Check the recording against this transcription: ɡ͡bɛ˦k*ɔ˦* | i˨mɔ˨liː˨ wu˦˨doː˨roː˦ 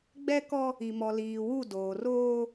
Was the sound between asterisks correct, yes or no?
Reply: yes